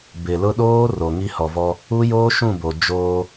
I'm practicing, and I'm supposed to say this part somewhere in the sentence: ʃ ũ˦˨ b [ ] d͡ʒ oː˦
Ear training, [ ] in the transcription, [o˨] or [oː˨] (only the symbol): o˨